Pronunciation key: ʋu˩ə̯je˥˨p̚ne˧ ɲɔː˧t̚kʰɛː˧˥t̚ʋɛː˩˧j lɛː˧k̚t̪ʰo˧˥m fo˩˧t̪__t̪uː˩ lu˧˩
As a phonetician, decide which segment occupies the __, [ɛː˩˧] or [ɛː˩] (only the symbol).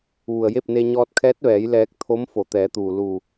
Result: ɛː˩˧